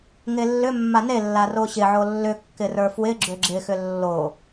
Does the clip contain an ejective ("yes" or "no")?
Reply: no